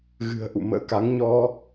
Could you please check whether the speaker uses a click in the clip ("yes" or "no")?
no